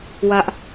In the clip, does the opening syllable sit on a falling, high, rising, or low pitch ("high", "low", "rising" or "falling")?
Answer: high